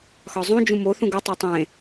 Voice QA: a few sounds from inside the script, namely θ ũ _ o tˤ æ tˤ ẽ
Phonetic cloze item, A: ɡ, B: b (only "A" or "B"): A